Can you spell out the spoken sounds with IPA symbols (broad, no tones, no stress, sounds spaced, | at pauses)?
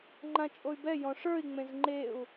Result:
ŋ͡ǃ ã t͡ʃʼ o y̯ b ɛ j ɔ̃ ʂ ə˞ i̯ ŋ͡m ẽ z ŋ͡ǃ e u̯